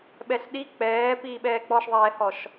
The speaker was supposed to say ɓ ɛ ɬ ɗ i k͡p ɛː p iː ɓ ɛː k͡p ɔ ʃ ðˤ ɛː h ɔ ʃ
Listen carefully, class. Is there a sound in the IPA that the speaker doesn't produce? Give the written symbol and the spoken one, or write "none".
none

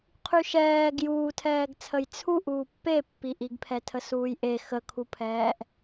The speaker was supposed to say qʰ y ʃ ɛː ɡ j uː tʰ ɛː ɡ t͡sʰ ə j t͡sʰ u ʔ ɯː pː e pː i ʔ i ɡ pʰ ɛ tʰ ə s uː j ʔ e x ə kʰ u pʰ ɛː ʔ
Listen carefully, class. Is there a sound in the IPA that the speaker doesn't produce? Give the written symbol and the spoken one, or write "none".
ɯː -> uː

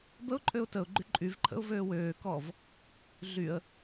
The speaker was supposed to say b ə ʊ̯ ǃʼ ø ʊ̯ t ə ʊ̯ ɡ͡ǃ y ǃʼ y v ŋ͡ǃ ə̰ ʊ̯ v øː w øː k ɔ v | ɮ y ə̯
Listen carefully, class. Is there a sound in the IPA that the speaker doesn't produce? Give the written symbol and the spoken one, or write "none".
ŋ͡ǃ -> ǃʰ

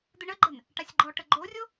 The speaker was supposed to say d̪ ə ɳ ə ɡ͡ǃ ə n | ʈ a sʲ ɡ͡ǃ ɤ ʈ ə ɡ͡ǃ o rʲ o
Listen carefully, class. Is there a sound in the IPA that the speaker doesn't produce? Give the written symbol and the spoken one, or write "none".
ɤ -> ɔ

